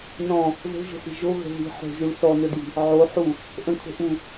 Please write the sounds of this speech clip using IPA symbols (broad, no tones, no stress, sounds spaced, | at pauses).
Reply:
n ɔ̃ | ð o̤ ʒ ə̤ s i̤ ʒ o ɣ ə̤ ð i̤ ħ o̤ ʒ u ɭ s ɔ n ɵ d j i̤ | ʕ o ħ u | ʔ ə̃ kʰ o̤ ʔ u